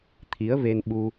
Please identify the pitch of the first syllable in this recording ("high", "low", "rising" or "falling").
rising